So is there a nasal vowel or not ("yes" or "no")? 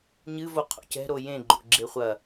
yes